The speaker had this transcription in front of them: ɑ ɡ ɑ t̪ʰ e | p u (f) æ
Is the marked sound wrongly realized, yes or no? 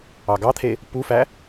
no